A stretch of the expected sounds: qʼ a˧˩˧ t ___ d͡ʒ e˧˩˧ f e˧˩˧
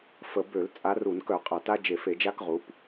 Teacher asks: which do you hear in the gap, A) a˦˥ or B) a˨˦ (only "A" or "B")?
A